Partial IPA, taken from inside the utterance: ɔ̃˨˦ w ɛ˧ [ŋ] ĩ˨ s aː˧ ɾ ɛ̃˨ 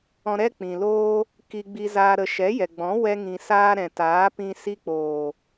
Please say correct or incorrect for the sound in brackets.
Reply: correct